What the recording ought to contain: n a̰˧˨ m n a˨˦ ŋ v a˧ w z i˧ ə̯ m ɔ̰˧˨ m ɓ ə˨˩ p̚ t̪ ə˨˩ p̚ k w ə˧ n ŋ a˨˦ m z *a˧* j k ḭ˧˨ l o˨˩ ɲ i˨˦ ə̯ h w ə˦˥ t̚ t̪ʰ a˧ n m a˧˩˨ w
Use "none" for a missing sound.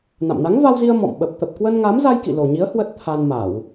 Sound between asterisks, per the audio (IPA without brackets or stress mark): a˧